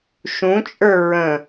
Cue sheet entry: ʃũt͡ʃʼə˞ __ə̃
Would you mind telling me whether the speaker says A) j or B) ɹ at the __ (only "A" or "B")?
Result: B